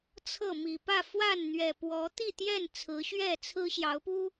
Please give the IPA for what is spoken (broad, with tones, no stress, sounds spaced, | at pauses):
t͡sʰ ɤ˥˨ m i˨˩ p ä˥˨ f w a˥˨ n n̪ ɥ ɛ˨˩ p w ɔ˨˦ t̪ i˥˨ t̪ j ɛ˥˨ n t͡sʰ ɹ̩˨˦ ɕ ɥ ɛ˥˨ t͡sʰ ɹ̩˦ ɕ j ɑ˨˦ ʊ̯ p u˦